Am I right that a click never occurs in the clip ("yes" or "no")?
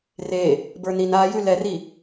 yes